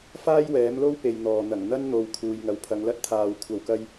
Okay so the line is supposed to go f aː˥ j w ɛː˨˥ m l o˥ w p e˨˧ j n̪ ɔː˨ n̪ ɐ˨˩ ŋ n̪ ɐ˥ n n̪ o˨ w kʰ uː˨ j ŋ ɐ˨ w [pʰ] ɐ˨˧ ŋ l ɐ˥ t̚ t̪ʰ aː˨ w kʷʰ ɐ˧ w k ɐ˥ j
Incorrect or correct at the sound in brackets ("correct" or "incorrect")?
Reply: correct